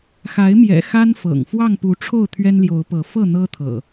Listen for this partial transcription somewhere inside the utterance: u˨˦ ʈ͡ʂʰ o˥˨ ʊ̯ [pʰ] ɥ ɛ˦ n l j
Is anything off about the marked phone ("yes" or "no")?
yes